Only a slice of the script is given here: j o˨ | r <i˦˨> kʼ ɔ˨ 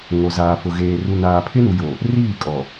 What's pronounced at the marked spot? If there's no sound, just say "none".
iː˦˨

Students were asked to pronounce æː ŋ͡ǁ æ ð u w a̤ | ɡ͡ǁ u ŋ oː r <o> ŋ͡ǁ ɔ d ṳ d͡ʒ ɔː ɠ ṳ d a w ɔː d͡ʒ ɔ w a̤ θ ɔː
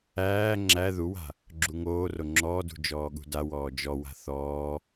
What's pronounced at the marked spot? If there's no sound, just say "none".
o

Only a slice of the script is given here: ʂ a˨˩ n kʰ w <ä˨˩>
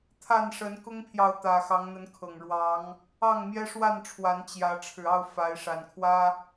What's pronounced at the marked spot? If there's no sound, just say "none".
ä˦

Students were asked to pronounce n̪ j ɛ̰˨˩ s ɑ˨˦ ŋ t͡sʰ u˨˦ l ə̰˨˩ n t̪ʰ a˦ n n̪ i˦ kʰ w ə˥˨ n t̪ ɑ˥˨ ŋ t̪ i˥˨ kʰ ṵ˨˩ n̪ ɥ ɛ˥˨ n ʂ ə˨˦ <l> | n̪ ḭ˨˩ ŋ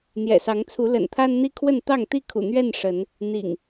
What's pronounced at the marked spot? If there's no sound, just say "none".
n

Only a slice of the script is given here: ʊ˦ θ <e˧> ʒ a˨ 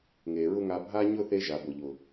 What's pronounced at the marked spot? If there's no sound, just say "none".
e˦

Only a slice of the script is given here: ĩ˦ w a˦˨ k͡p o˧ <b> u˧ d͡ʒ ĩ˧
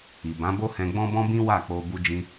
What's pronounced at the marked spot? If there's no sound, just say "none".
b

